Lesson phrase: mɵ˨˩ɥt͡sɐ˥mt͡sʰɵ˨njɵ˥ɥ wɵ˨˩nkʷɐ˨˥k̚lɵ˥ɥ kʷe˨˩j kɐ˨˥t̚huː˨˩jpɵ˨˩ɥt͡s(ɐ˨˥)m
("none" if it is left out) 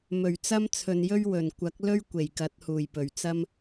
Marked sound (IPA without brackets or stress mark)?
ɐ˥